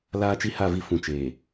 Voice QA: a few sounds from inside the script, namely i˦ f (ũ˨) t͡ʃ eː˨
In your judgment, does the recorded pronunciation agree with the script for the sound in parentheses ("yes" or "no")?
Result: yes